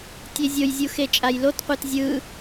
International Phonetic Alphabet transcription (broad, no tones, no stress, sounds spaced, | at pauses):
tʲ e zʲ o j zʲ u x e t͡ʃʼ a j l o t qʷ e t zʲ ɯ